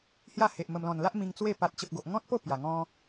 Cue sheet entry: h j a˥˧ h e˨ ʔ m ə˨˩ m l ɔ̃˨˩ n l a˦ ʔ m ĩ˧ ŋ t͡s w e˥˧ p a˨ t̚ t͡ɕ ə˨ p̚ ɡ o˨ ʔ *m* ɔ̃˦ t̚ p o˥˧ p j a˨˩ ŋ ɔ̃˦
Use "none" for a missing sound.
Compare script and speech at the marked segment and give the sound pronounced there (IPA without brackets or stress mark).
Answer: ŋ